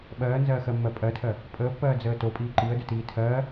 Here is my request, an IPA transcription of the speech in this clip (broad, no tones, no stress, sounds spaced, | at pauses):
ɓ ɜː n z ɜː x ɜ mː ɜ pʼ ɜ tʰ ɜ | pʼ əː pː ɜː d͡z əː t o pʼ iː ǃ i ə̯ d ə t iː tʰ ɜː